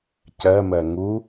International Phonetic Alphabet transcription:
c ɜ m ɜ ŋ u

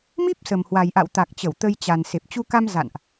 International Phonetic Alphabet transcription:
m i˦˥ p̚ s ə˨˩ m h w a˨˩ j ʔ a̰˧˨ w t̪ a˨˩ k̚ t͡ɕ ə˧˩ w t̪ ə˧ j t͡ɕ a˨˩ n s e˨˩ p̚ t͡ɕ u˧ k a˧ m z a̰˧˨ n ʔ

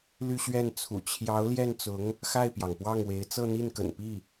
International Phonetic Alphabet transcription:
l y˥˧ ɕ ɥ ɛ˥˩ n t͡sʰ ṵ˨˩ t͡ɕʰ j ɑ˧˥ ʊ̯ l j ɛ˥˩ n t͡s ʊ˧˥ ŋ | x a˥˩ ɪ̯ p j ɑ˩ ŋ p w ɑ˥˩ ŋ w e˧˥ ɪ̯ t͡s ɤ˥˧ n̪ i˥˩ n k ə̰˨˩ n p i˥˩

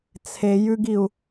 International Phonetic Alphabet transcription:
t͡sʰ e j ʉ ɡ i u̯

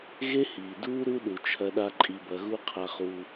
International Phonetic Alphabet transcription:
ɣ e˦ h iː˨ d uː˦ ɾ u˦ ɗ u˨ t͡ʃʰ ɐ˧ ɗ a˧ ǃʼ i˧ b ɐ˧ ɣ u˦ qʰ a˧ χ uː˧

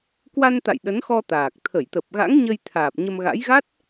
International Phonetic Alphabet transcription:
k w a˧ n t̪ a̰˧˨ j ɗ ə˨˦ n x ɔ˧ t̪ aː˨˩ k̚ t̪ʰ ə˧˩ j t̪ ə˨˩ p̚ ɣ a̰˧˥ ŋ ɲ ə˧ j t̪ʰ aː˨˩ p̚ ɲ ə˧ m ɣ a̰˧˥ j ɣ a˦˥ t̚

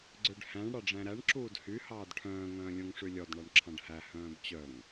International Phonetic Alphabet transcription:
ɡ͡ǀ ø ɖ h æ̃ ɳ ɽ ɑ ɖ͡ʐ æ̃ ɾ æ ɳ ǁ uː d h y h ɑː d ʈʰ œ̃ː ŋ œ̃ː lʲ õ ŋ ʂ ʉ lʲ ɔ d ɳ ɑ ɳ ǁʰ ɑ̃ ɖ h æ h œ̃ː b t͡ɕ œ ŋ

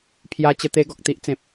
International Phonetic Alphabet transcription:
pʰ j a˧ t͡ɕ ə˧ t̪ e˧ ɡ ɔ˨ k̚ t̪ i˦ ʔ t͡s ẽ˨ p̚

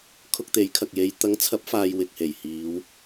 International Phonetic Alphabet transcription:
kʰ ʊ˧ k̚ t̪ e˨˥ j kʰ ɐ˨ k̚ j e˨˧ j t̪ ɐ˨˥ ŋ t͡sʰ ɐ˨˥ p̚ f aː˨ j w ɪ˨ k̚ h e˨˩ j h iː˨˧ w

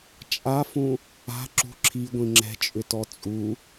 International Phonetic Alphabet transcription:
t͡ʃʼ a f ũ | a̤ ǁ ṳ ǁʰ i ɡʷ ĩ ŋ͡ǁ ɛ̤ t͡ʃʼ ʏ t ɔ t͡sʼ u

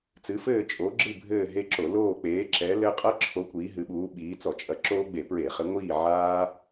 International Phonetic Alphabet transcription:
t͡s ɨ˨˦ f ɘː˦˨ t͡ʃʼ o˨˦ ɡ͡ǁ ɨ˦˨ bʱ ɘː˦˨ ɦ e˦ ǁ o˧˩˧ l oː˦˨ k͡p eː˨˦ ǁ ɛ˨˦ l ɘ˦ qʼ ɐ˦ ǁʰ o˨˦ kʷ iː˨˦ ɦ ɨ˨˦ ɓ uː˨˦ ɓ iː˨˦ t͡s ɔ˧˩˧ t͡ʃʼ ɐ˨˦ ǁ oː˦ ɡ͡b e˧˩˧ p ɹ e˧˩˧ χ ɘ˨˦ ŋʷ iː˦˨ ʕ aː˦

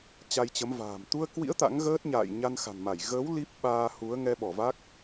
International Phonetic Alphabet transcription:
t͡ɕ a˧ j t͡ɕ ə˨˦ m v a̤ː˨˩ m t̪ u˧ ə̯ k w ḭ˧˥ ə̯ t̪ a̰˧˥ ŋ ɣ əː˦˥ t̚ ɲ a̰ː˧˨ j ɲ a˧ n x a̤˨˩ n m a˧˩ j ɣ əː˨˦ w l i˦˥ p̚ ɓ aː˧ h u˨˦ ə̯ ŋ ɛ˧ ɓ ɔ˧˩ v a˦˥ k̚

